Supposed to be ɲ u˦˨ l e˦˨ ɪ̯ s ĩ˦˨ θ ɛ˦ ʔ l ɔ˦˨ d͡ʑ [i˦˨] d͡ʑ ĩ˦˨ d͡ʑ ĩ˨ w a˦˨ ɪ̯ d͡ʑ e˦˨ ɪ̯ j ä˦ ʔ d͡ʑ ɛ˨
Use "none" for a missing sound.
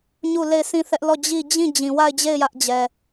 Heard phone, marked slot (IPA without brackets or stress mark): i˦˨